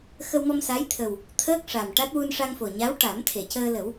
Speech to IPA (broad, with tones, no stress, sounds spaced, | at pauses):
x ə˧ w m ɔ˧ m s a˧˥ j t̪ʰ ə˨˩ w | t̪ʰ əː˦˥ k̚ ʂ a˨˩ m ʈ a˦˥ t̚ w u˧ n ʂ a˧ ŋ f o˨˩ ɲ a˧˥ w ʈ a˨˩˦ m t̪ʰ e˨˩˨ c əː˧ l ə˨˩˦ w